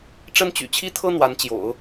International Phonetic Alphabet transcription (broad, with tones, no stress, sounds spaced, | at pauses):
ʈ͡ʂ ə˥ n t͡ɕ y̰˨˩ t͡ɕʰ i˥ t̪ʰ ɤ˥ n̪ w a˧˥ n t͡ɕ j o̰˨˩˦ ʊ̯